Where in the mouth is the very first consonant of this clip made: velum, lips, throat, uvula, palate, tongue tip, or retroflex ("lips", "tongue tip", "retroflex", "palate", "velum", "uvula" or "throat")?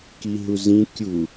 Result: velum